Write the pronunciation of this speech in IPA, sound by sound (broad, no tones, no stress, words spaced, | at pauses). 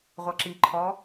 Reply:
ʁʷʌǁiǃʰɔ